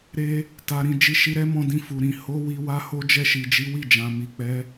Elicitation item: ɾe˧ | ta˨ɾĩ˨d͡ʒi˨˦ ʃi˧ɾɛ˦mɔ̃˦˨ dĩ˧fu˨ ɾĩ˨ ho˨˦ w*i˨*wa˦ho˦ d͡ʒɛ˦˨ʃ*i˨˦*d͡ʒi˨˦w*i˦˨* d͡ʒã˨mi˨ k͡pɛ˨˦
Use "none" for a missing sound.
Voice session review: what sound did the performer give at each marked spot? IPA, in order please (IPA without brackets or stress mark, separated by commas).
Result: i˧, i˨, i˦˨